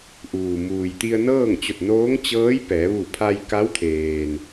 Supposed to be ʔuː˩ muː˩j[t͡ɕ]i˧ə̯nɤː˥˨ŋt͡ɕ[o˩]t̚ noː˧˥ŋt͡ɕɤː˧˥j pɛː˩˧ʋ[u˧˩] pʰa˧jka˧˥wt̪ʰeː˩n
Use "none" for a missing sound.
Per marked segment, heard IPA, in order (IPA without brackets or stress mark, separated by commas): t̪, o˧˩, u˧˩